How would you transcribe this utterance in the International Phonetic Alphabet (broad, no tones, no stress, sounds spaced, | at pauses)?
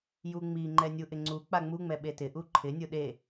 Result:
j u ŋ͡m i ŋ͡ǃ ɛ nʲ u ʔ ɪ ŋ͡ǀ u k͡p a ŋ͡m u ŋ͡m ɛ ɓ e t ɪ ʔ u ǃʰ ɪ nʲ ʊ ɗ e